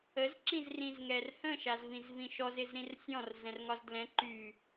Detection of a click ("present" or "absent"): present